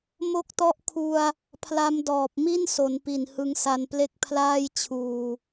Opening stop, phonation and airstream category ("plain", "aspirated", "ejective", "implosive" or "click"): plain